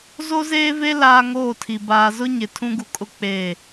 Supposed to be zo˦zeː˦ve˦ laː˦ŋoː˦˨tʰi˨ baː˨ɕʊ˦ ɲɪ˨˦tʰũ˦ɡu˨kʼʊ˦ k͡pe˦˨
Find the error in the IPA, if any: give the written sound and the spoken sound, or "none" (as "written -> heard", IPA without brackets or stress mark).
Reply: ɕ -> z